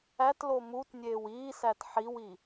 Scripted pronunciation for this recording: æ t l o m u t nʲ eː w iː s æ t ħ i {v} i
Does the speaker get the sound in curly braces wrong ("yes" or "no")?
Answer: yes